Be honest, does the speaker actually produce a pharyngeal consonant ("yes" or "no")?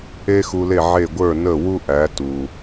yes